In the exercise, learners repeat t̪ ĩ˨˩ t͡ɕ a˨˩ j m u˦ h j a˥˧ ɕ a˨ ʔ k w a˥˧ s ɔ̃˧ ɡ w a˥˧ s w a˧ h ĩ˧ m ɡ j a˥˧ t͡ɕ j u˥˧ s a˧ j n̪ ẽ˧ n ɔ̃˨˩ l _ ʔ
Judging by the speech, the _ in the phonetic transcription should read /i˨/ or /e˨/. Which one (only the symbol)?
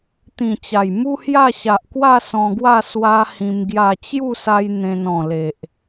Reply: e˨